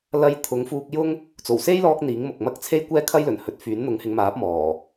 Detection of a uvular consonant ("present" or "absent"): absent